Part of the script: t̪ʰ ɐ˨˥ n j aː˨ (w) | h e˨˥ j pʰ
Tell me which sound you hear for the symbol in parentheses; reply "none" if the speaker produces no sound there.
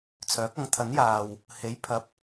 w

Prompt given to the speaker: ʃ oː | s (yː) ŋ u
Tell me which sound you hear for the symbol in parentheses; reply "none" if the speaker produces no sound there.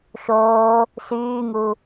yː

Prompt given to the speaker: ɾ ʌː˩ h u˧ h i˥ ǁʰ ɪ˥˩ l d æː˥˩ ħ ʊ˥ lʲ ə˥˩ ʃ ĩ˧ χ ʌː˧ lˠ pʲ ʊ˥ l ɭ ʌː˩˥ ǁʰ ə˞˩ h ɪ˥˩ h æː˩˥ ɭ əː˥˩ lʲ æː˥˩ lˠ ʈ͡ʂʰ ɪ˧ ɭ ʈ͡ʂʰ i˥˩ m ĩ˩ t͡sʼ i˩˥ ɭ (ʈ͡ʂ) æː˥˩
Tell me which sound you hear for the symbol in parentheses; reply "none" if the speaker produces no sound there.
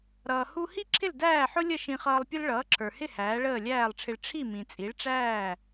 ʈ͡ʂ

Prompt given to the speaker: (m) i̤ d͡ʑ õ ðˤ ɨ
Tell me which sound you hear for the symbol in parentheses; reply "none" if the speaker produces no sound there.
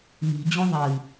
m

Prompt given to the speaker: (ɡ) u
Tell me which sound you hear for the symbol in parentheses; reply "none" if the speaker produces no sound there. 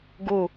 ɡ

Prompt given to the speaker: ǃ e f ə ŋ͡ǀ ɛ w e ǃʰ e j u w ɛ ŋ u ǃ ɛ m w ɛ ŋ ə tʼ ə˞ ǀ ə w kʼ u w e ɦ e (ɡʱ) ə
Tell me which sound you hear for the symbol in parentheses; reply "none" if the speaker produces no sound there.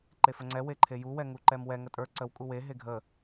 ɡʱ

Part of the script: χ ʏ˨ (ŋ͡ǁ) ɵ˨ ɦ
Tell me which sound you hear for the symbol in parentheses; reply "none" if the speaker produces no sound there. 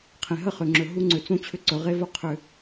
ŋ͡ǁ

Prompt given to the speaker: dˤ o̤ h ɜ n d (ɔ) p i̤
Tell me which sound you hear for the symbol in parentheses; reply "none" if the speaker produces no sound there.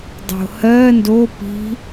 o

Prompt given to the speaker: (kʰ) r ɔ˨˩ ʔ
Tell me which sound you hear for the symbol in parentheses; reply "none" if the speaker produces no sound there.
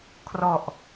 kʰ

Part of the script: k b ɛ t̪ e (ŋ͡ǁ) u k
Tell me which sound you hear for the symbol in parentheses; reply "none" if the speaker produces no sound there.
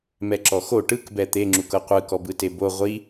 ŋ͡ǁ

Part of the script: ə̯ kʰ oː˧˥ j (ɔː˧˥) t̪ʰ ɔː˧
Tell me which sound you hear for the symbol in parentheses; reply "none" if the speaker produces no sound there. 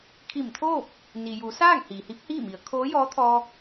ɔː˧˥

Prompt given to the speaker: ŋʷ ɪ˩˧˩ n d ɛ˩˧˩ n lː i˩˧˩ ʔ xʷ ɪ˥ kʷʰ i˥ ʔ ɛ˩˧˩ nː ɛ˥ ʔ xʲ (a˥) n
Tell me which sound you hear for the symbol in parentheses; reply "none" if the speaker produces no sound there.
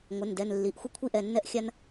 a˥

